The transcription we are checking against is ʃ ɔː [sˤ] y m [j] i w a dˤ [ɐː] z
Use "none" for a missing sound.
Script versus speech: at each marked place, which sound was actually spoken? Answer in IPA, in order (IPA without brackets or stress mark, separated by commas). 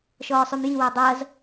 sˤ, j, ɐː